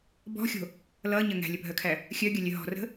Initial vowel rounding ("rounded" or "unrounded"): rounded